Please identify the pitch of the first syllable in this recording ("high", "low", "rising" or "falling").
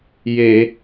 low